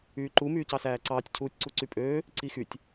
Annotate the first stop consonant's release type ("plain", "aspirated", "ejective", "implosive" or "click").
click